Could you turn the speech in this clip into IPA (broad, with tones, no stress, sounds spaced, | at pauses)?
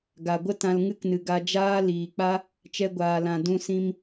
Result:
ɡ a˨ ɡʷ ə˦ t ã˧ l ŋ ɨ˦ k n ɨ˨ ɡ a˧ d͡ʒ aː˦ l iː˨ k͡p a˦ | t͡ʃ ɛ˧ ɡʷ aː˨ l ã˨ d ũ˧ s ĩ˧ m